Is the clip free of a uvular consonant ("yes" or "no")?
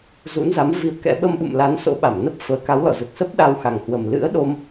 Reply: yes